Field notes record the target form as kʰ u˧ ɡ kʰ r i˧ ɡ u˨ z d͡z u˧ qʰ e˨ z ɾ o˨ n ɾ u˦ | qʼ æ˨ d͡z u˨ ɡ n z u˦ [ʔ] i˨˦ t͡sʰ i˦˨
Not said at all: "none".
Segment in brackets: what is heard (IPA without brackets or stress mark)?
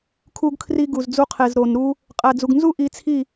ʔ